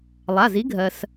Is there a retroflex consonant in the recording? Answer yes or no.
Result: no